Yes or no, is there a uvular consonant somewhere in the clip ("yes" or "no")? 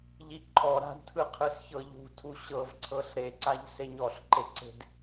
yes